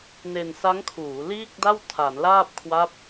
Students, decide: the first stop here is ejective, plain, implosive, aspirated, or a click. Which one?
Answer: aspirated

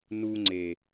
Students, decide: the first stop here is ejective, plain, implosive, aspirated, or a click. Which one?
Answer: click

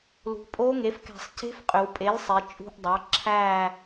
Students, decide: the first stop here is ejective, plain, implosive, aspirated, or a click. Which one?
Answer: ejective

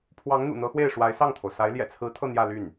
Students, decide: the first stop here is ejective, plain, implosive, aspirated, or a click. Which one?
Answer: aspirated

